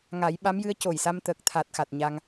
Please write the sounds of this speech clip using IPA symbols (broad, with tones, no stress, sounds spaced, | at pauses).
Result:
ŋ a˨˩˦ j ɓ a˧˥ m j ɨ˧˥ ə̯ c o˨˩ j s a˧ m t̪ əː˨˩ k̚ t̪ʰ a˨˩ t̚ x a˨˩ t̚ ɲ a˧ ŋ